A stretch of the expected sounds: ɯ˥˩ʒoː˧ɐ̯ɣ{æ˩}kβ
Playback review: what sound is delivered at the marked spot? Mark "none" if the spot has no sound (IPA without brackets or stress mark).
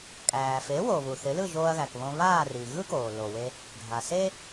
æ˩